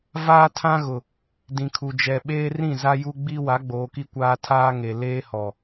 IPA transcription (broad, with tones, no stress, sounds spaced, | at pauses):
v aː˦ tʰ ã˦ ɣ ʊ˨ | d ĩ˨ kʰ u˨ d͡ʒ ɛ˨ ɓ eː˦ r ĩ˦˨ z a˦ j u˦ ɡ͡b i˦ w a˨˦ ɡ͡b oː˨ k i˦ kʷ aː˦ tʰ aː˦ ŋ e˨ l eː˦ h ɔ˨